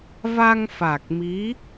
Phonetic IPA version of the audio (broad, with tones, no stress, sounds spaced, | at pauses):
v a˧ ŋ f a˨˩ k̚ m i˧˥